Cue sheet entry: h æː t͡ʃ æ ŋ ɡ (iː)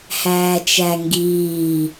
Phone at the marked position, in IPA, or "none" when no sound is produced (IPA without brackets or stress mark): iː